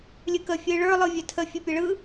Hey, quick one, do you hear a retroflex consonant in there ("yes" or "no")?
yes